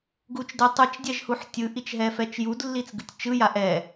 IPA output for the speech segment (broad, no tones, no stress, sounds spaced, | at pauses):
ɡ u t͡ʃ d e tˤ ɯ t͡ʃ dʲ ɛ ʒ h u ħ tʲ ɯ ʔ i t͡ʃ ɦ ɛ f ɛ t͡ʃ j u d lː i t͡s ɡ ɯ tʲ t͡ʃ ɯ j a ʔ ɛ